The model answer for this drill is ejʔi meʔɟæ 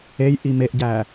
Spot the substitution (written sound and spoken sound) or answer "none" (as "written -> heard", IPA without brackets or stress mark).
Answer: none